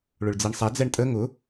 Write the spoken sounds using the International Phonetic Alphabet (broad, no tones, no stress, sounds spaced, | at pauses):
ɭ ʊ ɭ d͡z i ɳ sˤ ɛ d͡z ɛ ɳ tʼ ə ŋ ʊ